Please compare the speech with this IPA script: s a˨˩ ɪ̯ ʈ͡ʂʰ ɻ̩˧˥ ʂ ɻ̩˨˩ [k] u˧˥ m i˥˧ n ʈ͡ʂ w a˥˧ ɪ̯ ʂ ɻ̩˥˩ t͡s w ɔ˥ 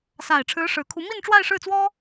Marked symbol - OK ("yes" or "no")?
no